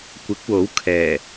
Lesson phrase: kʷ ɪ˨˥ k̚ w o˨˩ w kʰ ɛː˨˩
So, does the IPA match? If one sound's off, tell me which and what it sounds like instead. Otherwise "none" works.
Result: o˨˩ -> o˨˥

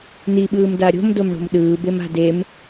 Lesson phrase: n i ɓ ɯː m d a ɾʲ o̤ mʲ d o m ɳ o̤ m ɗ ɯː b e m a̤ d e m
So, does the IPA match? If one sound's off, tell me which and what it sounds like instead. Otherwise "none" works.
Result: mʲ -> m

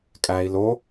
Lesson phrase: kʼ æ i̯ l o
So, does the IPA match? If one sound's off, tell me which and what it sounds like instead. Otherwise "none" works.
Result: none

